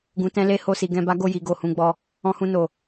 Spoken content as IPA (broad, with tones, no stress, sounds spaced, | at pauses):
ɡ ũ˨ t ɛ̃˧ l e˧ h o˧ s i˨ ɡ ɛ̃˧ b a˦ ɡ o˦˨ j i˨ ɡ o˨ h ũ˧ ɡ͡b ɔ˧ | ɔ̃˧ h ũ˧ n o˨